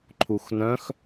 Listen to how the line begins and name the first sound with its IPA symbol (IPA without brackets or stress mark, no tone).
ǃʰ